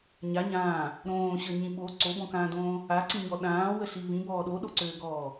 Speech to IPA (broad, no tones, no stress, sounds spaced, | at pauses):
ɲ a ɲ ãː | ɾ õː ɕ əː ɲ ĩ ɓ o ǀ o b ɔ̃ k ãː d õː | a ǀ ĩ ɲ ɔ ɗ ãː w ə ɬ i v ĩ b ɔː ɗ o ɗ o ǀ øː ɡ ɔː